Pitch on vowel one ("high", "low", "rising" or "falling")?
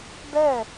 falling